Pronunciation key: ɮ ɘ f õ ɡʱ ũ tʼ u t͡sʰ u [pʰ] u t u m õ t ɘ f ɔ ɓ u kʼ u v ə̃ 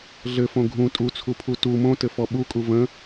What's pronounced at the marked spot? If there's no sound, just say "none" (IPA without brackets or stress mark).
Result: pʰ